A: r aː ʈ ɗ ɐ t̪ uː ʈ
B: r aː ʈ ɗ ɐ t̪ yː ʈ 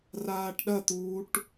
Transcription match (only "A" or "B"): A